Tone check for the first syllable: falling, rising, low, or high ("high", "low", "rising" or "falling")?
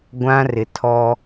high